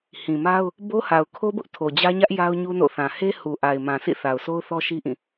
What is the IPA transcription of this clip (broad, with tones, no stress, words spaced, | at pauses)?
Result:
hĩ˨ma˦ʊ̯ | bo˦ha˨ʊ̯kʰo˦bʊ˦ʔ tʰo˨d͡ʑä˦ɲä˦ʔ ja˦ʊ̯ɲu˦no̰˦˨θã˨ he˦hu˨ʔa˨ɪ̯ mã˨sʰḭ˦˨ θa˨ʊ̯so˦ʊ̯ θɔ˦ʃi˦ʔĩ˦˨